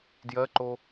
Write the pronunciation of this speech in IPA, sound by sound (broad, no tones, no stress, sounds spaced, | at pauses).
d j ɜ ǃ o